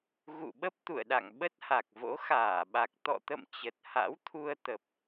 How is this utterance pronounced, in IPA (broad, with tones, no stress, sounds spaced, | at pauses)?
ɣ ṵ˧˨ ɓ ə˦˥ p̚ t̪ ṵ˧˨ ə̯ ɗ a̰˧˨ ŋ ɓ ə˦˥ t̚ h a˨˩ k̚ v o̰˧˥ x aː˧˩ ɓ a˨˩ k̚ t̪ ɔ̰˧˨ t̪ ə̰˧˨ m t͡ɕ ə˨˩ t̚ h a̰˧˥ w t̪ʰ u˧ ə̯ t̪ ə˨˩ p̚